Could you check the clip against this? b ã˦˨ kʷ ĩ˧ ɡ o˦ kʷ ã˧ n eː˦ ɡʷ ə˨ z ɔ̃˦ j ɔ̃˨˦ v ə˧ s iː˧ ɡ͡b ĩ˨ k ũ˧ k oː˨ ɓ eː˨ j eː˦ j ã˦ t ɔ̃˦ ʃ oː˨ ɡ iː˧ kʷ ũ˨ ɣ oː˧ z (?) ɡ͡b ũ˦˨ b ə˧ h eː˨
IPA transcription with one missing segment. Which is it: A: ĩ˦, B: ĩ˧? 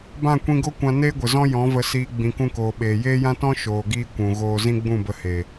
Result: A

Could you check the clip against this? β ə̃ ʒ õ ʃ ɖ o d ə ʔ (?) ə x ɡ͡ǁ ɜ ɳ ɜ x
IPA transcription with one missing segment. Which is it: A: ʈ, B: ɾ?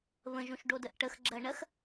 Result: A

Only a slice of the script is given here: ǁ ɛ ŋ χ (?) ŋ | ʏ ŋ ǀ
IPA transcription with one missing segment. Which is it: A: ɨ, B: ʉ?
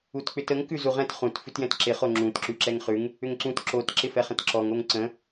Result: B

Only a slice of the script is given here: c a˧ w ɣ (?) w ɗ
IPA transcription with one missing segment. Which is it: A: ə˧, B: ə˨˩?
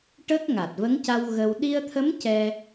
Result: A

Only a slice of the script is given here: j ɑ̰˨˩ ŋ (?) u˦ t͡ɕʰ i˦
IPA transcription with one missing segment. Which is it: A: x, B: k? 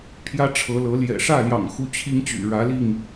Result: A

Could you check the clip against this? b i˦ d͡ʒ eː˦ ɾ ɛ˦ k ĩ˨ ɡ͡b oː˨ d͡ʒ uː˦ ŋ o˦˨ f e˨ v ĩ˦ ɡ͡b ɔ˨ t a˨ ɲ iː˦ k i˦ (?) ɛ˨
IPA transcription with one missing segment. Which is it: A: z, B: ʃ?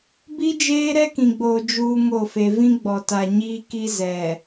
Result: A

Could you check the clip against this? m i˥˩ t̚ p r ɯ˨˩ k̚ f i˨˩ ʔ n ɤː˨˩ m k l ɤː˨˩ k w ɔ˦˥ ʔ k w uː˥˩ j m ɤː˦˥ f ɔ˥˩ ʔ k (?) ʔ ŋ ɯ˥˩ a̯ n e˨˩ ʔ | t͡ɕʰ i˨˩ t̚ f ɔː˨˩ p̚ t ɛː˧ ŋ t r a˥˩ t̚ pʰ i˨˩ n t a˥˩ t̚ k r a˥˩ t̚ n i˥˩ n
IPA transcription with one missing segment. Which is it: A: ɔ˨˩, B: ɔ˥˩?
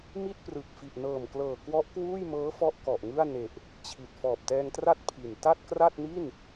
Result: A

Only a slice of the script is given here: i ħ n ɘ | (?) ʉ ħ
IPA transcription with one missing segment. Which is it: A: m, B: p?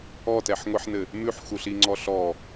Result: A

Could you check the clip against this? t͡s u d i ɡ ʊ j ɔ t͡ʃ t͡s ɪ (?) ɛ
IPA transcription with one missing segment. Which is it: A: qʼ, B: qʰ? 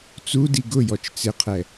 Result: B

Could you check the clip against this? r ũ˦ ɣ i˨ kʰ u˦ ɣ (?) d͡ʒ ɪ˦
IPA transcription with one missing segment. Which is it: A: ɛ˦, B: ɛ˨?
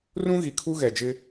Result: B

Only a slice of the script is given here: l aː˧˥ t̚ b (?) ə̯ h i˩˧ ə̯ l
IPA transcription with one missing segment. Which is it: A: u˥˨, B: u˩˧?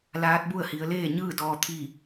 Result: A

